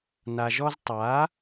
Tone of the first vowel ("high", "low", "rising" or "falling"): low